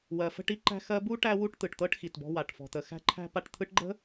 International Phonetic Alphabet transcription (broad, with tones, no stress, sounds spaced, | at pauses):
w ɜ˨ f ə̤˦ ʈ i˥ ǃ æ̤˦ x ɜ˦ b u˥ ʈ æ˥ w u˥ ʈ t̪ ɯ˩ ʈ t̪ ɤ˥ ʈ x i˩ t b ɔ̤˦ w a˩ ʈ f ɔ̤˩ t̪ ə˩ x æ̤˥ ǃʰ æ̤˥ p a˦ ʈ t̪ʰ ɯ˦ ʈ ɡ͡ǃ ə̤˥